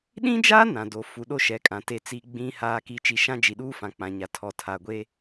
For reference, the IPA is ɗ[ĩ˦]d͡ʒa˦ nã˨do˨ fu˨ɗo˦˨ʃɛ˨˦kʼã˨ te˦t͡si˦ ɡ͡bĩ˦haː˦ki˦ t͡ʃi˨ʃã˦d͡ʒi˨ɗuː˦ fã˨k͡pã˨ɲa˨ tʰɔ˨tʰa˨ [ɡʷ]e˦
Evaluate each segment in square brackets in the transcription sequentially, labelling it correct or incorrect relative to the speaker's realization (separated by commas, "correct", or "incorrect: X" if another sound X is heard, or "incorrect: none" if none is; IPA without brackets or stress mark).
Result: correct, correct